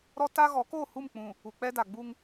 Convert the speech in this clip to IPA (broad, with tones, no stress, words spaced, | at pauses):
ɾɔ˦ ta˦ ɣɔ˨˦ko˦˨hu˦˨mk͡pũ˨ | u˨k͡pɛ˦da˨ɡ͡bu˦ŋ